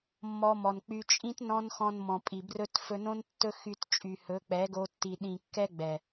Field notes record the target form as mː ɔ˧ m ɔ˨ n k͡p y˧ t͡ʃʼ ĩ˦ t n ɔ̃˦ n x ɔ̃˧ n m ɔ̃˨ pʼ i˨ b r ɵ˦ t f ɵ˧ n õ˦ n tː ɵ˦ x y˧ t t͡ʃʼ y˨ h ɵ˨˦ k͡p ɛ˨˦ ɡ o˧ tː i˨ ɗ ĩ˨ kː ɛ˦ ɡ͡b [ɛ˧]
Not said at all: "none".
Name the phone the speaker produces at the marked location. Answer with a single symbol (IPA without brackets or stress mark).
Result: ɛ˨